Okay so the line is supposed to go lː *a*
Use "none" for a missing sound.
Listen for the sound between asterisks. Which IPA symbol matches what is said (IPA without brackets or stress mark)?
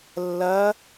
ɐ